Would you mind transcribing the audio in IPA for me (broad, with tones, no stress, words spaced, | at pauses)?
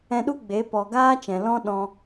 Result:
ɛ̃˧ɗu˦ɡ͡be˨˦ pɔ˨ɡaː˦ t͡ʃɛ̃˨ lɔ̃˦ ɗɔ̃˧